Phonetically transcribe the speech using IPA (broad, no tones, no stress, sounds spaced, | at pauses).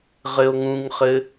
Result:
ʁ ɘ o̯ ŋ ũ ŋ χ ɘ